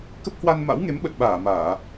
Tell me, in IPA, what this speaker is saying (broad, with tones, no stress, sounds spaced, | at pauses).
k ə˦˥ p̚ h w a˧ n m a̰˧˥ w ŋ e˨˦ m ɓ ə˨˩ t̚ ɓ aː˧˩ m aː˧˩˨